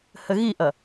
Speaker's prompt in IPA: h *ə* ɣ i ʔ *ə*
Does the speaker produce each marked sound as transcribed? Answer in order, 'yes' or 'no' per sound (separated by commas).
yes, no